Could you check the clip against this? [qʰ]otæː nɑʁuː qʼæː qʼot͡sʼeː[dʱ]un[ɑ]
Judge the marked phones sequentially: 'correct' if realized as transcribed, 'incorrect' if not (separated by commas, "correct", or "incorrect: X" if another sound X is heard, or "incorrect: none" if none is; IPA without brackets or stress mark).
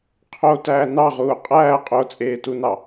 correct, incorrect: t, correct